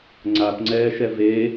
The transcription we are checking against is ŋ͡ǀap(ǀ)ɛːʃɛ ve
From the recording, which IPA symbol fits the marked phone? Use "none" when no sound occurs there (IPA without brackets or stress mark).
ŋ͡ǀ